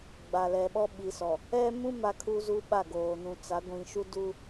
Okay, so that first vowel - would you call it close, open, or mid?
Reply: open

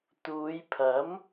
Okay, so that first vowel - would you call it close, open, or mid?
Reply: close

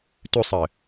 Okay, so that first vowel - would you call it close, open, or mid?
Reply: close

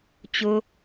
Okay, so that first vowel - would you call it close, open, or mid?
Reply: close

